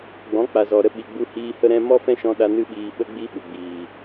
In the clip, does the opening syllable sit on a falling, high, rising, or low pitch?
rising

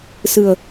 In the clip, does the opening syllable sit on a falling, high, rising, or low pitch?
low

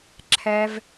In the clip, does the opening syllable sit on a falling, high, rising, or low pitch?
low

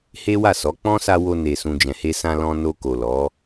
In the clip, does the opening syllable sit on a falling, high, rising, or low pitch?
high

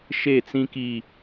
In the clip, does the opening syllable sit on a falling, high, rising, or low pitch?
falling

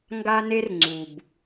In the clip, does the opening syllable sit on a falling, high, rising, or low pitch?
high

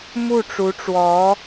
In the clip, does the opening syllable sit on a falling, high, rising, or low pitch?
falling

